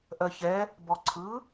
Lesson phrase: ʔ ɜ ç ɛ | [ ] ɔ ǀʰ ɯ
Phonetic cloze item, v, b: b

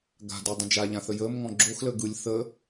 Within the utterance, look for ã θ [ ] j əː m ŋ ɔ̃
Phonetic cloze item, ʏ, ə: ə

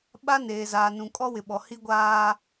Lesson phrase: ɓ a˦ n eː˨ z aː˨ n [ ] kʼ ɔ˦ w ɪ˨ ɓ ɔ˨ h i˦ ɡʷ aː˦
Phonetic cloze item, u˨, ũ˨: ũ˨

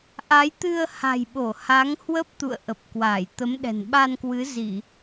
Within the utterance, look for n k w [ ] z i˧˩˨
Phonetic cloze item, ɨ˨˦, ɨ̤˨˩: ɨ˨˦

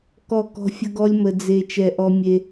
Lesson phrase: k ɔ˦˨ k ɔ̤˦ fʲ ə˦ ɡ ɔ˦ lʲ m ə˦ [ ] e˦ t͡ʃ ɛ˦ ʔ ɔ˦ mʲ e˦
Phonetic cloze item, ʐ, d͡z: d͡z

